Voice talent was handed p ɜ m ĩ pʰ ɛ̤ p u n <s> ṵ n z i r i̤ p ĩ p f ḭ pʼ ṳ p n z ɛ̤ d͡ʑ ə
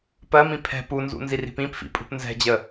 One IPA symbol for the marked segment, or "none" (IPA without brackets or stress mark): z